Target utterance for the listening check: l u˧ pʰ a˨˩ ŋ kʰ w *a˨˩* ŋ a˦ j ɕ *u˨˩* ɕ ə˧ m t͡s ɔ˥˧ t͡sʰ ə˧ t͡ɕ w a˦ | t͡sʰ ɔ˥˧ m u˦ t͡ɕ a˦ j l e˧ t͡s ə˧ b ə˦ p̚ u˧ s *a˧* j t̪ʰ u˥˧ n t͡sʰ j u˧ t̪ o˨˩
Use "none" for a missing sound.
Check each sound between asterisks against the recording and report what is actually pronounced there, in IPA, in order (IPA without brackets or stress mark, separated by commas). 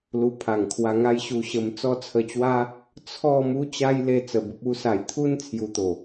a˧, u˧, a˨˩